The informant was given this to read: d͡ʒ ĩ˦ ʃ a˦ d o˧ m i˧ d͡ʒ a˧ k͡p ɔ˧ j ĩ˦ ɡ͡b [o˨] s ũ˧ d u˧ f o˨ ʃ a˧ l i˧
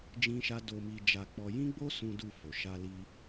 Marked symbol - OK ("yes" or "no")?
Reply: no